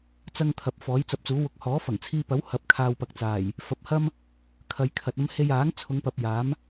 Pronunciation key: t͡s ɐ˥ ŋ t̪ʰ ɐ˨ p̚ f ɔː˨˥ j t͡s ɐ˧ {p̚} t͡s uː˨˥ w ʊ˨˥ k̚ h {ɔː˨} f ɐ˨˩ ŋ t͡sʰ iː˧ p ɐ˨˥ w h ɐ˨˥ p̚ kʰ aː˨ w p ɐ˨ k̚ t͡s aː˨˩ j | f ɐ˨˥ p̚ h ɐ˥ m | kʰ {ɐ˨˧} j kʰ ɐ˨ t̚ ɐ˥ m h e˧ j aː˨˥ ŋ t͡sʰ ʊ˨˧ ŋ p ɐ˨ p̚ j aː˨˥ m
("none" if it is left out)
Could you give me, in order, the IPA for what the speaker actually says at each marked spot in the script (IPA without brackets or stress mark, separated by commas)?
p̚, ɔː˨˥, ɐ˨˧